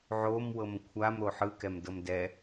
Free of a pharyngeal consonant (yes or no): no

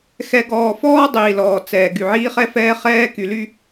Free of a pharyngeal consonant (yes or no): no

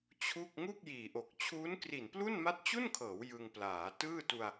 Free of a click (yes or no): yes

